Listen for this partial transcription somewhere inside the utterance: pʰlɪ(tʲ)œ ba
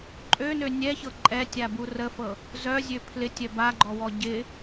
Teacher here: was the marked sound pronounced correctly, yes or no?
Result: yes